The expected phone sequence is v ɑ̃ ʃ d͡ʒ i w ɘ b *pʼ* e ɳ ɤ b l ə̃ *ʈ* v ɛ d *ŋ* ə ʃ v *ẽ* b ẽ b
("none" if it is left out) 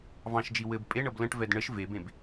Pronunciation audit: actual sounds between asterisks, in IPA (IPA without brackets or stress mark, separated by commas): pʼ, ʈ, ɳ, e